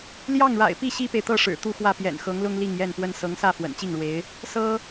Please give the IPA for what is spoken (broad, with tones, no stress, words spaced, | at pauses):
ljɑ˥˩ŋɻa̰˨˩ɪ̯ pi˥˩ɕi˥pe˨ɪ̯ t̪ɤ˥˩ʂɻ̩˨˩ t̪u˥˧xwä˥˩ pjɛ̰˨˩nxɤ˧˥ŋlʊ˥ŋ li˥˧ŋjɛ˥˩npwə˥n sɤ˧˥ŋsä˥˩ fwə̰˨˩nt͡ɕi˥˩ŋɻwe˧˥ɪ̯ | sɤ˥